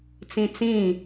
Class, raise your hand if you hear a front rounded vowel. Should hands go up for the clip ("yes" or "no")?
no